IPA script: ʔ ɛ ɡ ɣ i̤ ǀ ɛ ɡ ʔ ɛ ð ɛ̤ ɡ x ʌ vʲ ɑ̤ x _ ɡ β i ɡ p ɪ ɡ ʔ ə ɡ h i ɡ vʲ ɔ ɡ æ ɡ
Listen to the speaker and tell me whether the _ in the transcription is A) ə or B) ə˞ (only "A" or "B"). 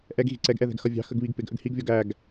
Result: A